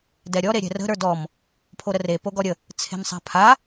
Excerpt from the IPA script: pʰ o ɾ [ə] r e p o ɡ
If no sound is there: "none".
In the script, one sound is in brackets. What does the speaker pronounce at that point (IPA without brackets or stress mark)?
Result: ə